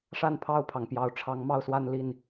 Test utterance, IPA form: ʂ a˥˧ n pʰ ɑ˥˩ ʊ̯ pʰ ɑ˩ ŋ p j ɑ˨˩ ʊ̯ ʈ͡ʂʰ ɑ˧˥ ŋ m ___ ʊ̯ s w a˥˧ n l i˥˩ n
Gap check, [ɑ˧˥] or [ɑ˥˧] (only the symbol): ɑ˥˧